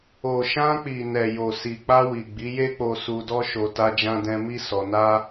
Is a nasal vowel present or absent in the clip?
present